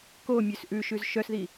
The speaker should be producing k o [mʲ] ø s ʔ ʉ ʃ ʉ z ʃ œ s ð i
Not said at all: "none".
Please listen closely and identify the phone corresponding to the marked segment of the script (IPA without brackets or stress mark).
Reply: mʲ